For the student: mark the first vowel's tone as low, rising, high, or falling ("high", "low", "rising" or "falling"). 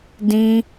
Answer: high